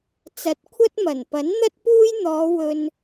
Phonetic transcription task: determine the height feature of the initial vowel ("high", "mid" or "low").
low